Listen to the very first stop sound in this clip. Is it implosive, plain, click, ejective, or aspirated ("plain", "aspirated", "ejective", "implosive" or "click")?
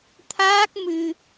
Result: aspirated